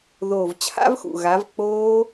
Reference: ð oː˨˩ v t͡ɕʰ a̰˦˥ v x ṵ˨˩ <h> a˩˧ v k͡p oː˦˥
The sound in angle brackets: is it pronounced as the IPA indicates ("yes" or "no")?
no